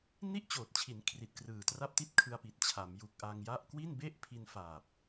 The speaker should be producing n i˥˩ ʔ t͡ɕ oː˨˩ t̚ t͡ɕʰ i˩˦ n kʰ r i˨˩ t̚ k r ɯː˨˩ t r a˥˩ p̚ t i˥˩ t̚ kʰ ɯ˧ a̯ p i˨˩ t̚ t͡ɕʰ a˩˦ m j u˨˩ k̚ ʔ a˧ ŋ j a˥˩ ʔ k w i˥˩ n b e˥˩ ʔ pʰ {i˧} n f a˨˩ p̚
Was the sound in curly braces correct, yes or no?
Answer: yes